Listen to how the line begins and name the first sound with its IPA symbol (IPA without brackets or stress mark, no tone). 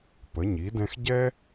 p